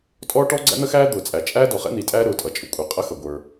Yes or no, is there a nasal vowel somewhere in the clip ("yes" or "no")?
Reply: no